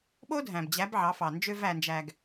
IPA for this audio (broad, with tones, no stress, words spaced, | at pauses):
ɓo˦dʱæ̃˨bd͡ʑæ˨˦b ʕɑ˨˦fɑ˨ nd͡ʒø˧væ˨nd͡ʒæ˨ɡ